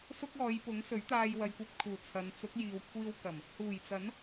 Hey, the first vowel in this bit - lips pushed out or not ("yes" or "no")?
yes